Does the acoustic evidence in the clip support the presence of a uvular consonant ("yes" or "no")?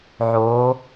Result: no